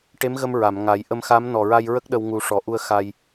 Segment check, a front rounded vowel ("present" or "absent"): absent